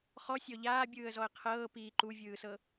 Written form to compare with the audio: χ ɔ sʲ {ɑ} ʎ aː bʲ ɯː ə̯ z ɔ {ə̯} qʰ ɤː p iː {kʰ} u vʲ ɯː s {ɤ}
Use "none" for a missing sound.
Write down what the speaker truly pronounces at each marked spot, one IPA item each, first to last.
ɔ, ə̯, ǃ, ɤ

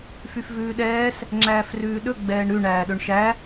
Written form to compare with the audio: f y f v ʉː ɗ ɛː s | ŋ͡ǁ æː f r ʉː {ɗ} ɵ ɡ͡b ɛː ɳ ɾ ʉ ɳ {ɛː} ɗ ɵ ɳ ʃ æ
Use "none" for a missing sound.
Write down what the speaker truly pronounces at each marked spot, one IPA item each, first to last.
ɗ, æː

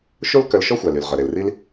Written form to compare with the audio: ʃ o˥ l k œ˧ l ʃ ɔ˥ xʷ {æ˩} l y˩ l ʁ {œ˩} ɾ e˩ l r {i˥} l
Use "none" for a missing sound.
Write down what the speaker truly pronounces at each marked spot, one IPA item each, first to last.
æ˩, œ˩, i˥

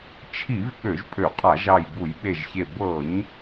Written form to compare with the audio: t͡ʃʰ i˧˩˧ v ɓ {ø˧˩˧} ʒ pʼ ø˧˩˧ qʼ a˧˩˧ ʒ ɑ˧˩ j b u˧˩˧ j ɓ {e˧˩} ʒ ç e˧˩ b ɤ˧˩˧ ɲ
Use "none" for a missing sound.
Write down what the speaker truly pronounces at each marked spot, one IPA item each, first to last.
ø˧˩˧, e˧˩

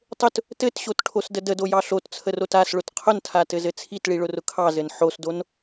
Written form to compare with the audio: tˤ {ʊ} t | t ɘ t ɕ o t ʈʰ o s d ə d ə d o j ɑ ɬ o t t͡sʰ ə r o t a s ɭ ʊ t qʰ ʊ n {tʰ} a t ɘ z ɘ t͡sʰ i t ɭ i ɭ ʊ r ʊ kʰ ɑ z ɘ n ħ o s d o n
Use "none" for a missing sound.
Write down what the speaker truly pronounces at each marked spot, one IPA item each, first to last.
ʊ, tʰ

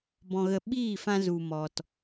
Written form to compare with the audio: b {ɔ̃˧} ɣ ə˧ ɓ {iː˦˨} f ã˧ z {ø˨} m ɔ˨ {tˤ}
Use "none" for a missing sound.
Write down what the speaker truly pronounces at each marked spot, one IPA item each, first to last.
ɔ̃˧, iː˦˨, u˨, t

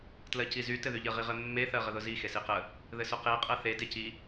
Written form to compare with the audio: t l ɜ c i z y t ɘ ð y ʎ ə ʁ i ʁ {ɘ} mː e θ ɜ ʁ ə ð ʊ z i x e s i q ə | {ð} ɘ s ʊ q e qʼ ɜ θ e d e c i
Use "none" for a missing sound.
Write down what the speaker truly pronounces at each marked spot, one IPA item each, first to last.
ɘ, ð

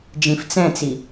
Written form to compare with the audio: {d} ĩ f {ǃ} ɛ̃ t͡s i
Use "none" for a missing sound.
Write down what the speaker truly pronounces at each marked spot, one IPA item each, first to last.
d͡ʒ, t͡s

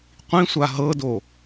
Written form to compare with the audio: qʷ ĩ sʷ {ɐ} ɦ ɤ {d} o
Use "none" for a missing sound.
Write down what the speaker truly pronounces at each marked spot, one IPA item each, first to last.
a, d

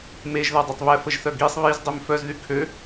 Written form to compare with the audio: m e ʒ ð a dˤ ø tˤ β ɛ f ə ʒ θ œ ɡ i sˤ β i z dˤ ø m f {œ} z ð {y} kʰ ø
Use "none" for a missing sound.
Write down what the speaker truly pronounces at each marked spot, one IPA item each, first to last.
œ, y

